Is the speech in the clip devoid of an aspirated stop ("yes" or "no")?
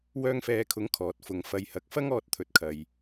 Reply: no